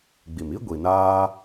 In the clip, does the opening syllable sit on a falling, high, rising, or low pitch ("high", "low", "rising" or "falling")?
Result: low